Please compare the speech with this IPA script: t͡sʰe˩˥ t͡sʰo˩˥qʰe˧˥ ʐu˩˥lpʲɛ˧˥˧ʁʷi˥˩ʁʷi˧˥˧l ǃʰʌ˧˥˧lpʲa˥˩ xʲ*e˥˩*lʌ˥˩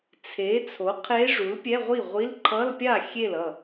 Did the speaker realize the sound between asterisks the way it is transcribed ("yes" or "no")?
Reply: yes